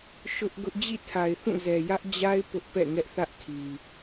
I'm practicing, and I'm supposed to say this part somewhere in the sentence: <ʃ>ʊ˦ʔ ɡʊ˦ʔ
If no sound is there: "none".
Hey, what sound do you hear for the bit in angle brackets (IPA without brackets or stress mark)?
ʃ